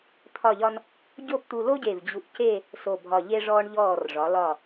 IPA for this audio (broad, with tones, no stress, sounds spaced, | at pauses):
t̪ʰ ɒ˥˧ ʎ ɒ˥ n | ɟ o˥˧ p t̪ u˧ l o˥ ɟ e˧˩ v d͡ʑ u˧ ʔ c e˥˧ | s o˧˩ bʱ ɒ˧˩ ʎ e˥ ʐ ɔː˥ ɳ ʎ ɔː˧˩ r ʐ ɒ˩˧ l ɒ˧˩